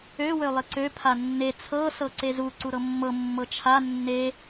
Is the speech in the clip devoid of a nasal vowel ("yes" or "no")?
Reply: yes